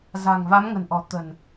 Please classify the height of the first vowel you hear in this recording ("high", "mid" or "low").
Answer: low